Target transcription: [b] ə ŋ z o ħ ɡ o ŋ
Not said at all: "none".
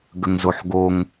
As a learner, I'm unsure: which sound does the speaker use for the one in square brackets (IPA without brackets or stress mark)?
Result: ɡ